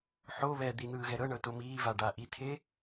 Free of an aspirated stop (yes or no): no